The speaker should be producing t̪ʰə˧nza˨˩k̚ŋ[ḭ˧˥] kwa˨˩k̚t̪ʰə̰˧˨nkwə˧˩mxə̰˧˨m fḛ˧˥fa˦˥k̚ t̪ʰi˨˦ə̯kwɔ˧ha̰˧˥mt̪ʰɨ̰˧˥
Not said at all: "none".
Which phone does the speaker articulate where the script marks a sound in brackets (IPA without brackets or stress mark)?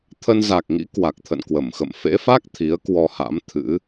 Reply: ḭ˧˥